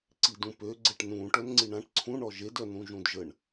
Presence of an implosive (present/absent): absent